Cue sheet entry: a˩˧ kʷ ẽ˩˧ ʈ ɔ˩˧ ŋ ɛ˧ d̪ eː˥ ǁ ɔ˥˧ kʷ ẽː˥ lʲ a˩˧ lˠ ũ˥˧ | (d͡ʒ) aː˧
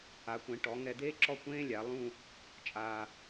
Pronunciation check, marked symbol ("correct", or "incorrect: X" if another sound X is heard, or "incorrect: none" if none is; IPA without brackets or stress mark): incorrect: t͡ʃʼ